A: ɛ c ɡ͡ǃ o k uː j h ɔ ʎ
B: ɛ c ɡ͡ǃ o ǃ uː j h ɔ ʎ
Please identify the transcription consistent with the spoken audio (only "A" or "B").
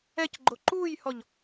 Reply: B